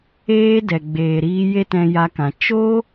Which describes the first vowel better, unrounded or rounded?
unrounded